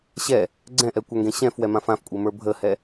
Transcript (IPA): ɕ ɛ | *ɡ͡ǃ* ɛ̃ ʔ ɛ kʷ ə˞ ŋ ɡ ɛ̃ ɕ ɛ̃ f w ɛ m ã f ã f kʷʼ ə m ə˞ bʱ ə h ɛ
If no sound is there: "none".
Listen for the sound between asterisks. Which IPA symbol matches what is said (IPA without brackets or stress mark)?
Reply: ɡ͡ǀ